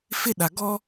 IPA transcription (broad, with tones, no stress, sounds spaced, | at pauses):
f ɪ˦ ɗ a˨ ɡ ɔ˦